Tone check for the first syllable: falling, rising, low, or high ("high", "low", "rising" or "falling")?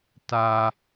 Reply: high